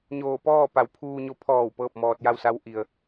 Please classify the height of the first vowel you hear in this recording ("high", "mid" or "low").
mid